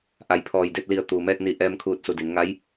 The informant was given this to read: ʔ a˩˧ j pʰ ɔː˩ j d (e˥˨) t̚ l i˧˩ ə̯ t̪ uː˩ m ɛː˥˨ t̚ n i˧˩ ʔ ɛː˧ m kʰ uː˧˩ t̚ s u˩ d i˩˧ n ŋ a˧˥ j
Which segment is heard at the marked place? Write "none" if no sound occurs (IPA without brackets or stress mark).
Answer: e˥˨